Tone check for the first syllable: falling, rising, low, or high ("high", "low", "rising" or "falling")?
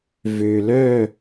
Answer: low